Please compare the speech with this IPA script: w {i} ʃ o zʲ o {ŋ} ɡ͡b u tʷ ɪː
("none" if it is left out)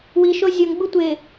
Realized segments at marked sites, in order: i, ŋ

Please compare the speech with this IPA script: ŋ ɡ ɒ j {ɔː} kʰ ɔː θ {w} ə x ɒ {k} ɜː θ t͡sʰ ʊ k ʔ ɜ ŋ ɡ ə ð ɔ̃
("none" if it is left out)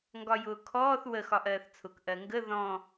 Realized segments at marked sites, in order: ʊː, w, ʔ

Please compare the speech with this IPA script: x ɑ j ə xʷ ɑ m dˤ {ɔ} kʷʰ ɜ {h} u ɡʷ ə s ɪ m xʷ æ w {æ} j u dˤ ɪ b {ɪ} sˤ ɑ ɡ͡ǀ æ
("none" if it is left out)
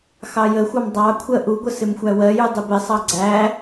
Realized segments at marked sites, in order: ɑ, ʔ, ɜ, ɪ

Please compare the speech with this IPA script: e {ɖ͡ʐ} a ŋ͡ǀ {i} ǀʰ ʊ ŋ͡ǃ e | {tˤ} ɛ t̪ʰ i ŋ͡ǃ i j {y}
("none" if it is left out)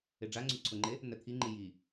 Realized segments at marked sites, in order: ɖ͡ʐ, y, n̪, i

